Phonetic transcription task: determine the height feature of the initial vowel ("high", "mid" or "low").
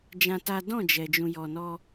low